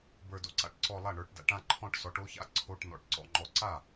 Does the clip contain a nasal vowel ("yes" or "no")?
yes